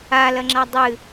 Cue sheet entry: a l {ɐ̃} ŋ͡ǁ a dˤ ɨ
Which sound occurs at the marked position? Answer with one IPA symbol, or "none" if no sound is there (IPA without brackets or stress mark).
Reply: ɐ